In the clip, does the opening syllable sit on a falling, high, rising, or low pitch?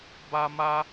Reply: high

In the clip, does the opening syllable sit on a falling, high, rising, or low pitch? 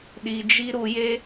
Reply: low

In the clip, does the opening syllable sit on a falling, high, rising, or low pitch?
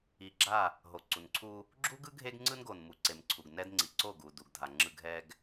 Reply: low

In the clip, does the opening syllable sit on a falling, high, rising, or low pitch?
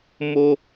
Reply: high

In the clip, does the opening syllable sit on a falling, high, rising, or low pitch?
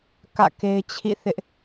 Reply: falling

